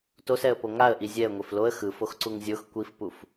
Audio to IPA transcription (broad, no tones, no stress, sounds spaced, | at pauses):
t o s ɛ ə̯ p o ŋ a ə̯ ʔ i zʲ ɛ ə̯ ŋʷ e f l o ə̯ x ɯ f o x ǀ u ŋ zʲ o x kʷ i f p u f